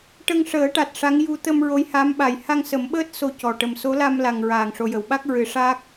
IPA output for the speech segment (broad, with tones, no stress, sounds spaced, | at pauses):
ʈ ə˧ ŋ ʂ əː˨˩˦ ʈ a˨˩ t̚ ʂ a˧˥ ŋ j u˧ t̪ ə˧ m ɹ o˧˥ j h a˧˥ m ɓ a˨˩ j h a˧ ŋ s ə˨˩˦ m ɓ əː˦˥ t̚ s o˧ c ɔ˨˩ ʈ ə˨˩ m s o˧˥ l a˧ m l a˨˩ ŋ ɹ aː˨˩ ŋ ʂ o˨˩ j ə˨˩˨ w ɓ a˦˥ k̚ ɹ ɨ˨˩˦ ʂ aː˦˥ k̚